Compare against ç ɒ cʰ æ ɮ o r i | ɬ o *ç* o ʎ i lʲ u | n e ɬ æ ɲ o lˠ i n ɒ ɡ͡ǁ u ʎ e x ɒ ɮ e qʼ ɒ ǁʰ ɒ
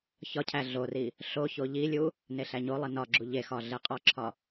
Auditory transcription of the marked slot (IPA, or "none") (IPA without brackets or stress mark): ç